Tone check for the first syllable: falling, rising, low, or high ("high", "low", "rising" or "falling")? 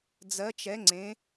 rising